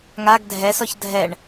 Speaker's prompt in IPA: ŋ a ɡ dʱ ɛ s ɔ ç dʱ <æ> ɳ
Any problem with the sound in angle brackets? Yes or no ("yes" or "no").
yes